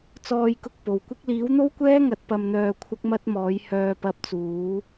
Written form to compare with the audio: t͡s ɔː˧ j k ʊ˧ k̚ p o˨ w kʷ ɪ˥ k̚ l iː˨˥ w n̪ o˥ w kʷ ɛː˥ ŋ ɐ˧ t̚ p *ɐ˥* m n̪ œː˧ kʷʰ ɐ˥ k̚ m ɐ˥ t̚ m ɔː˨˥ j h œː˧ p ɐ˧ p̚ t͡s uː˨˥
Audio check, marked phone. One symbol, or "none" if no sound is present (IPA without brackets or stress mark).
ɐ˧